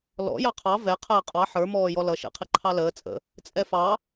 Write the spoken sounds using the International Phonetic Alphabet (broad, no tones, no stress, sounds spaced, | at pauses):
l ɔ̰ j ɑ qʰ ɑ v ɛ qʰ əː qʼ ɑ ħ ə˞ m ɔː j ɔ l ʌ ʃ ɛ̰ qʰ i ǃʰ ɑ l əː t͡sʼ ə̰ | t͡sʼ ɛ f ɑ